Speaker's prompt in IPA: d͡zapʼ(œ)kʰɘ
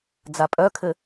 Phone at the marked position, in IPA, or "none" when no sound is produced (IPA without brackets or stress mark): œ